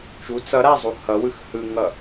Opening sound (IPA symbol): t͡ʃ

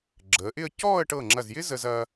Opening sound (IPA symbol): ɡ͡ǁ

